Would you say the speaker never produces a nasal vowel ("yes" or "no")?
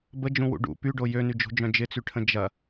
no